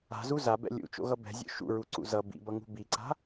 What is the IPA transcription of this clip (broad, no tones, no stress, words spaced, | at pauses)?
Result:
a̤zu zabɛ̰ lʲṵt͡ʃo̰ɣʌ bɛ̤zʲo̰ ʃṵɹuǀṵ zʌ bḭbʌŋṳ biǀa̤